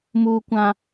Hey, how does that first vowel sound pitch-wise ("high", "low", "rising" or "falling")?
low